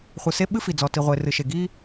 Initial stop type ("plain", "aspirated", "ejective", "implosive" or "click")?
implosive